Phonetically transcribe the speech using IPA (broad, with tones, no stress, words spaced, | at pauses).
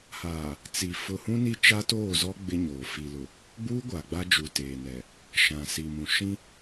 haː˨ | t͡si˨ fʊ˨hũ˦ni˦ t͡ʃa˦toː˦˨zɔ˦ ɡ͡bɪ˦ɲoː˨ fi˨lʊ˨ | ɡ͡buː˦ɡʷa˨ ɡ͡ba˦d͡ʒu˨ teː˨nɛ˨ | ʃã˨si˨mũ˨ ʃĩ˦